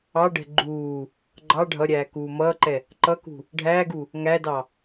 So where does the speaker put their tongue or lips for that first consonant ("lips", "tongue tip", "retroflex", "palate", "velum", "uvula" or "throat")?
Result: retroflex